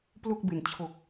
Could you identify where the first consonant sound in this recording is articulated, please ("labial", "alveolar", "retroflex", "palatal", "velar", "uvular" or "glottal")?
labial